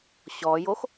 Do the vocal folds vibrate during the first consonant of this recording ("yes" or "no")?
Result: no